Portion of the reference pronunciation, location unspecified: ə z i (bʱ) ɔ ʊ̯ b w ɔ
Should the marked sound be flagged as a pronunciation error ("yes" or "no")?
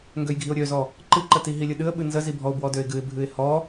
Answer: no